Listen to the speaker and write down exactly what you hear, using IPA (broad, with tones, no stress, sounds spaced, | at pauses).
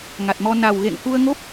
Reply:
ŋ a˨˩ t̚ m ɔ˧ n a˨˩ w ɣ ḛ˧˨ ŋ k u˧ ə̯ ŋ o˦˥ p̚